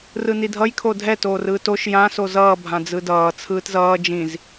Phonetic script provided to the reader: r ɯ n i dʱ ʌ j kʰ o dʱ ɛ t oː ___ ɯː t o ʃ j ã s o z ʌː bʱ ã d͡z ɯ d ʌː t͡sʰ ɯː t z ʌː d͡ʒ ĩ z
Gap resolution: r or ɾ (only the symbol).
r